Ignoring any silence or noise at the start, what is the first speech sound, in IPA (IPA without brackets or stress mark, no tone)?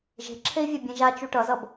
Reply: ʒ